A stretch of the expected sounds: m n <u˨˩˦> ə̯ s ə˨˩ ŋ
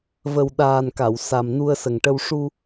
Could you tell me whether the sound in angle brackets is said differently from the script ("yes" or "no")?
yes